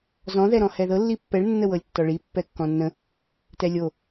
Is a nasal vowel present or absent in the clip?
present